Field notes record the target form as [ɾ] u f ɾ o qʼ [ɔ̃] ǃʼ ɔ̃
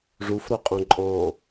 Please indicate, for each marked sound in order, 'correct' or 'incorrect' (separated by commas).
incorrect, incorrect